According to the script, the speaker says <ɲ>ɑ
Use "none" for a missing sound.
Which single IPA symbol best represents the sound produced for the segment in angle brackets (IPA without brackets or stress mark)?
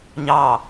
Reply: ɲ